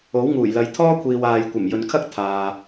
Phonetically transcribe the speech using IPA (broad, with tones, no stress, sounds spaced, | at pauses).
o˨˥ w ŋ uː˨˩ j l ɐ˨ j t̪ʰ ɔː˥ kʷʰ iː˨ w aː˨ j kʷ ɐ˨˩ m j ɵ˨ n kʰ ɐ˥ k̚ t̪ʰ aː˨